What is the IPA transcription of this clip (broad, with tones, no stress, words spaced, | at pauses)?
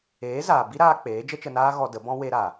eː˨˦zaː˨ bi˦ɾaː˧ k͡peː˨˦d͡ʒə˦t͡ʃə˧naː˦ ɣɔ˧də˨˦bɔ̃˦ we˧ɾa˨